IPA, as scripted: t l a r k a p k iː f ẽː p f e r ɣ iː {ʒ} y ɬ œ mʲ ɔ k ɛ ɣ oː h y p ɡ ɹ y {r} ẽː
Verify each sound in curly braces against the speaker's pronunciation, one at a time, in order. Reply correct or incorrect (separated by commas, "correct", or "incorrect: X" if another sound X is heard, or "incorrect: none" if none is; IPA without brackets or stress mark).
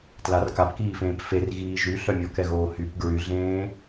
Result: correct, incorrect: ɮ